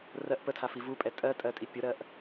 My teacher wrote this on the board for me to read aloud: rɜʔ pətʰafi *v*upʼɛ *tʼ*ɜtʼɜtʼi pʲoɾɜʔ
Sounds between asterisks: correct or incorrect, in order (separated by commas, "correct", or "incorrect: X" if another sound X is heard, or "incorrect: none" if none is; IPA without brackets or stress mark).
correct, correct